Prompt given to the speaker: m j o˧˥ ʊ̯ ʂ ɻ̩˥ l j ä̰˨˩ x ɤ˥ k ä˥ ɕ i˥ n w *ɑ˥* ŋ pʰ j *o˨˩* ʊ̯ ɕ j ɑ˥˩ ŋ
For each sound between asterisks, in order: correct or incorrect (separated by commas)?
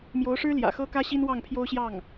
incorrect, incorrect